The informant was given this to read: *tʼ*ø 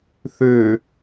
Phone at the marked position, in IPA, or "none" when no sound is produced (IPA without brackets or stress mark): θ